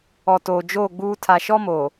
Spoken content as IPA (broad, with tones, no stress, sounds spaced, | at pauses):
ɔ˨ t oː˨ d͡ʒ oː˦˨ ɡ͡b uː˦ tʰ a˨ ʃ ɔ˦ m oː˨